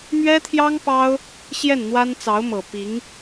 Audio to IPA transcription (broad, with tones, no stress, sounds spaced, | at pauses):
m ɥ ɛ˥ t̪ʰ j ɑ˥ ŋ p ɑ˥ ʊ̯ | ɕ j ɛ˥˩ n n̪ w a˥ n t͡s ɑ˧˥ ʊ̯ m ɤ˨˩ p i˧˥ ŋ